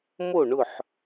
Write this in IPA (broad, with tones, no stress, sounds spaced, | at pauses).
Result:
m o˥˨ ɳ ʊ˥˨ ħ